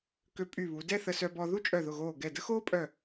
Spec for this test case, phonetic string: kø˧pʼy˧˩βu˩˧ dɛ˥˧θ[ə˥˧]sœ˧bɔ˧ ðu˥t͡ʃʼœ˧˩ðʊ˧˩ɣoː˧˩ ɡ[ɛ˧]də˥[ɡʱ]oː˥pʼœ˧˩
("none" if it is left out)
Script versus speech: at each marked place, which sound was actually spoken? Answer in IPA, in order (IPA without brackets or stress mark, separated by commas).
ə˧, ɛ˧˩, x